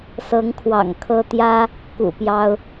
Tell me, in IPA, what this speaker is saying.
s ɤ˧˥ ŋ kʰ w ɑ̰˨˩ ŋ kʰ ɤ˥ t̪ j ä˥ | k ṵ˨˩ p j ɑ˥ ʊ̯

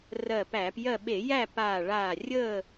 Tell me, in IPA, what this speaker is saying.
r ɜ˧˩ p æː˧˩˧ p j ɜ˥˨ ɓ e˧˩˧ j æ˥˨ p aː˧˩ ɭ aː˧˩ rʲ əː˥˨

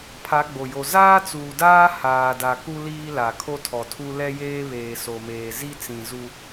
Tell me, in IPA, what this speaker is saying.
pʰ a˨˦ ɡ͡b o˨ j o˨ z aː˦ t͡s uː˨ d aː˦ h aː˨ d a˨ k u˦ l iː˦ l a˨ kʰ o˦ tʰ ɔ˨ tʰ u˦ l ɛ˦ j eː˦ β eː˨ s o˨ m eː˨ z i˦ t͡s ĩ˨ z u˦

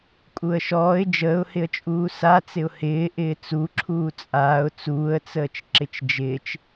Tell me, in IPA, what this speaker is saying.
kʼ u ə̯ ʃ ɔː ɪ̯ d͡ʒ əː ʊ̯ h ɪ ə̯ t͡ʃʼ uː s a t͡s ɪ ʊ̯ h ɪː ʔ ɪː t͡s u ǁʰ uː t͡sʼ aː ʊ̯ t͡s uː ə̯ t͡s əː t͡ʃ ǁ ɪ t͡ʃ d͡ʒ ɪː t͡ʃ

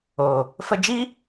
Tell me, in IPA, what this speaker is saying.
o˨ | f ə˧ d͡ʒ i˦

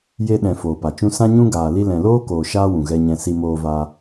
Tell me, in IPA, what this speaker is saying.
j e˧ ɗ ɛ̃˨ f oː˨ p a˨ t͡ʃ ũ˦ s ã˦ ɲ ũ˦ ɡ aː˨ l i˧ l ɛ̃˨ l oː˦ k oː˨ ʃ aː˦ w ũ˨ ɣ ɛ˧ ɲ ɛ̃˧ s i˧ m oː˧ v aː˧

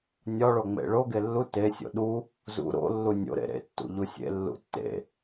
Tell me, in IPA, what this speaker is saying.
nʲ ɒ ɭ o ŋ͡m ḛ ɭ o ɡ e lː u t e sʲ o̰ ɗ u | z ṵ ɾ o̰ lː u nʲ o̰ ɾ ḛ ɾ ḛ tː ṵ ʎ u sʲ ḛ lː ṵ tː ḛ

